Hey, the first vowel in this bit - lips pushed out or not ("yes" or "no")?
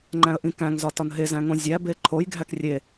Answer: no